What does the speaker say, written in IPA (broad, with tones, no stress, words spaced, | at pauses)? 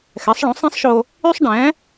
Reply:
xɛ˩˥sˤɭõ˩˥sˤẽ˥sˤʃo˧ | y˥sˤɖɛ̃˩˥